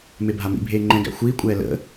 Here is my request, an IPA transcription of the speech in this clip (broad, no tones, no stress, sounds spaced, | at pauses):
m e bʱ a m ḭ bʱ eː ŋ͡ǃ ɛ̃ ɡ æ̰ xʷ iː kʷʼ ɛː l ə̰